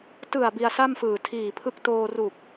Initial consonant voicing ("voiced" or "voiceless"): voiceless